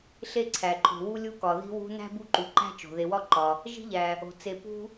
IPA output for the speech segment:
ɬ e˥ ǀʰ æ˩ ǃʰ o̤˨ w u˥ lʲ u˦ k ɒ˩ ð i̤˦ w ṳ˦ n æ̤˥ b u˦ ǃ u˩ ǃ æ̤˥ t͡ʃ o̤˩ ð e˨ w ɒ˥ ǃ ɒ˩ | ʒ i̤˥ ʎ æ˩ | o̤˩ t͡s e˨ p ṳ˥

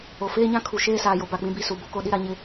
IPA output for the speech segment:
o˨ f eː˦ ɲ ã˦ kʰ u˨ ʃ eː˦ s aː˨ j o˨ b a˦˨ k͡p ĩ˦ b i˦˨ s u˨ b o˦ k o˦ ɗ i˦ ɾ a˦ ɲ ɪ˦

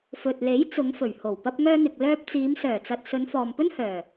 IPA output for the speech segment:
f ɵ˨ t̚ l e˨˥ j t͡s ʊ˨˧ ŋ f ɵ˨˩ ɥ h o˨˩ w p ɐ˧ p̚ ŋ œː˧ n̪ ɪ˨ k̚ l œː˧ p̚ t͡s iː˨˧ m s œː˨˩ t͡s ɐ˨ t̚ s ɵ˨˧ n f ɔː˨ m p ɵ˥ n h œː˨˩

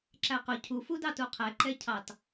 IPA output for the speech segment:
ǁ æ q ʊ cʰ u f u d ɑ t u qʰ ɛ ǃ ɛ cʰ ɑ t

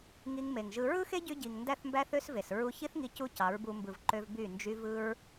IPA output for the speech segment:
ŋ i˧ ŋ m e˨ ŋ ʒ ɯ˧ ɹ ɯ˦ x e˦ ɟ y˧ ɟ i˨ ŋ n d æ˦˨ θ m b æ˦ θ ø˦ s v e˨ s ɹ u˧ ç i˦ θ ŋ i˧ c u˦ c ɑ˨˦ ɹ b u˧ m b ɯ˨ v ǃ ø˧ v b y˦˨ n d͡ʒ y˧ v ɯ˦ ɹ

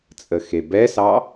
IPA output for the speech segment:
t͡sʼ ə x e b ɛ s ɑ

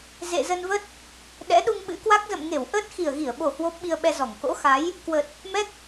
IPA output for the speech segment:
z ḛ˧˨ z ə˧ n v ə˦˥ t̚ | ɗ ɛ̰˧˥ ɗ u˧ ŋ ɓ ɨ̰˧˥ k w a˦˥ k̚ z ə̰˧˨ m ŋ e˧˩ w ʔ əː˦˥ t̚ x i˨˩ ə̯ ɣ i˧˩ ə̯ ɓ o˨˩ h w o˦˥ p̚ ɓ i˧ ə̯ ɓ ɛ˧ z ɔ˧˩ ŋ k o̰˧˥ x a˨˦ j | k w ə˨˩ t̚ | m ɛ˦˥ k̚

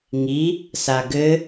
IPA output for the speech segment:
ŋ i | s a ɡ ɘ

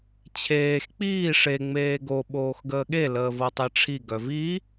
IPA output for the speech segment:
t͡ɕʰ eː x k͡p iː ʂ e ŋ͡m eː ɡ o ɓ oː x ɡ əː ɠ e l əː v ɤ tˤ i ʈ͡ʂʰ i ɡ œ v i

